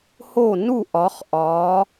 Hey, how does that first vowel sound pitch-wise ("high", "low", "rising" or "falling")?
falling